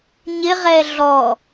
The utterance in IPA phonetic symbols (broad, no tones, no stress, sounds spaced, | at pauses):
ɲ ɪ ʁ ɛ ɮ ɔ